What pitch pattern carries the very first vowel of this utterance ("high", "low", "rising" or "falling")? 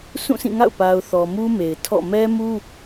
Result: falling